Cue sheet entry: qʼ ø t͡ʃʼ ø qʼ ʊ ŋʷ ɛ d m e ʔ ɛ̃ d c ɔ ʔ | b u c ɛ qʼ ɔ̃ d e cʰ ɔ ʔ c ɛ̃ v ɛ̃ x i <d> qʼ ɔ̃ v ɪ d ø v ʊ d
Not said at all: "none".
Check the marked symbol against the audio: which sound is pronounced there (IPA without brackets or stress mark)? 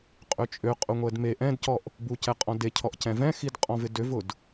d